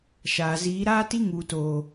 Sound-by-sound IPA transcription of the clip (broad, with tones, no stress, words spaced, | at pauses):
ʃaː˨ziː˨˦ɾaː˦ti˦ ŋu˨toː˨